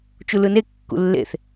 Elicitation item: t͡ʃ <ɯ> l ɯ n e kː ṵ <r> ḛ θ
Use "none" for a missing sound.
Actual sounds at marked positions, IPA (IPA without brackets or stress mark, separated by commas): u, lː